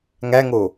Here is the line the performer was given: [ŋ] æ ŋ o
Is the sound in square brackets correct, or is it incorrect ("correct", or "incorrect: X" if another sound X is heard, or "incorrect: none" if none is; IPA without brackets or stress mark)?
correct